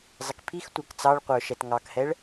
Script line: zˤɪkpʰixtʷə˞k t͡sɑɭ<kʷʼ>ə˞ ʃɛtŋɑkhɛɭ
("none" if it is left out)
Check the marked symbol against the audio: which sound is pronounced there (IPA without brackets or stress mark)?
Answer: qʷ